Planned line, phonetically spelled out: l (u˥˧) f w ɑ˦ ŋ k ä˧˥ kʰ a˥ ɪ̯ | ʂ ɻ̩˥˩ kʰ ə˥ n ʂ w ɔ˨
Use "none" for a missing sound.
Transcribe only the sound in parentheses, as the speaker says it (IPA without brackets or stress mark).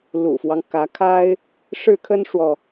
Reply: ṵ˨˩